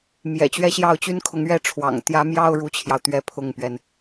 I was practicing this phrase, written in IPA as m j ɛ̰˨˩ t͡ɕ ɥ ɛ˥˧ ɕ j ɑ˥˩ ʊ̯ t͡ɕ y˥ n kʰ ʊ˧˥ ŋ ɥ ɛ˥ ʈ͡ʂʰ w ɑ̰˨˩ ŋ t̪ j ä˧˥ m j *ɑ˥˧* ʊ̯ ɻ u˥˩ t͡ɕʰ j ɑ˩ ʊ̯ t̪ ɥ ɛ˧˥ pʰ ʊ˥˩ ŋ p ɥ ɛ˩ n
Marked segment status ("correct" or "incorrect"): correct